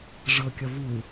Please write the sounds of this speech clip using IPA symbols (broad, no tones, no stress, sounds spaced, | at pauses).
ʐ ɤ kʲ ʌ v u